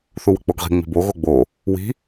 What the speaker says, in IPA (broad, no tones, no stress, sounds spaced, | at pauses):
θ u w ə k͡p o ɡ ʁ i̤ ŋ͡m i̤ b o ɣ o ɡ͡b o | w i̤